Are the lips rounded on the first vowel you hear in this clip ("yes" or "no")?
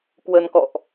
no